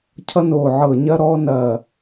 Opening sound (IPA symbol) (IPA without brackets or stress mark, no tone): cʰ